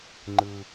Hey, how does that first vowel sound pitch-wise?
low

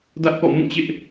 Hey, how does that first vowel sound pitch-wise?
high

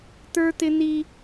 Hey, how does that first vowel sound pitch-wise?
high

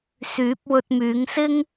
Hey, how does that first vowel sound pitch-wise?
rising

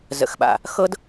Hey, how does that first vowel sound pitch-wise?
low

